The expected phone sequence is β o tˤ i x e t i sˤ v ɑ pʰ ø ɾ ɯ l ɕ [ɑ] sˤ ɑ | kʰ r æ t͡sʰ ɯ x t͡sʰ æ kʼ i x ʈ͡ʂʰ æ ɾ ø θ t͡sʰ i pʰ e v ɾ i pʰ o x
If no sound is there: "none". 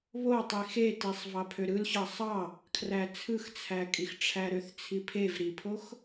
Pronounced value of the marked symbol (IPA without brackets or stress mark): ɑ